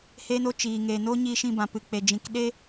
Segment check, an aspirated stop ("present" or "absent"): absent